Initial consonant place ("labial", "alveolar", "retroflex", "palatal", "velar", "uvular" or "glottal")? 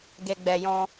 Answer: velar